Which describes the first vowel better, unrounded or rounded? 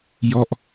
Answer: rounded